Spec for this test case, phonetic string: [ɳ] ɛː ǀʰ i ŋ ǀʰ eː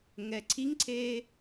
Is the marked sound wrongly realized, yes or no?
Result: yes